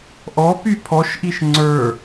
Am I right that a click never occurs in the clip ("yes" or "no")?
no